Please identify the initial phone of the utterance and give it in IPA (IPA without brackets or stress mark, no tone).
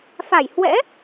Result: f